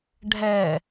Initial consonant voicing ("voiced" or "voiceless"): voiced